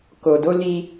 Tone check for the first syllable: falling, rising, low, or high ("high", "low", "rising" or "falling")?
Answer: low